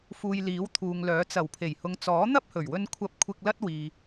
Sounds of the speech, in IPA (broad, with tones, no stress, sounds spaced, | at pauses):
f uː˨ j l iː˨˥ w t̪ʰ uː˨ ŋ l œː˨˥ t͡s ɐ˨˩ w pʰ e˨˩ j h ʊ˨˧ ŋ t͡s ɔː˨˥ n̪ ɐ˥ p̚ h ɵ˨˩ ɥ w ɵ˧ n kʷʰ ɐ˧ p̚ kʷʰ ɪ˧ k̚ l ɐ˥ t̚ w iː˧